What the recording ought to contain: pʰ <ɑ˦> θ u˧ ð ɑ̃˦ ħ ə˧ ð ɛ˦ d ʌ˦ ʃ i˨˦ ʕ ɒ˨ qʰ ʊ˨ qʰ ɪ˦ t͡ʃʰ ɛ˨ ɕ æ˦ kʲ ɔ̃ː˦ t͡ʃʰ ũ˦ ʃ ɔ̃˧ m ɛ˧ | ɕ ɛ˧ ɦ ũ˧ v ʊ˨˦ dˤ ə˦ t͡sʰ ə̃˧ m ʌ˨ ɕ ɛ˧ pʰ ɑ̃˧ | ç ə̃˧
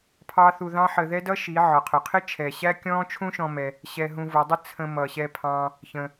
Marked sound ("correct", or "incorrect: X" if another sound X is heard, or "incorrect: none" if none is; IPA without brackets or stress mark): correct